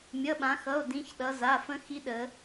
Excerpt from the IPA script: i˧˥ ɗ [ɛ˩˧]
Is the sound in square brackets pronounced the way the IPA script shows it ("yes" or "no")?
no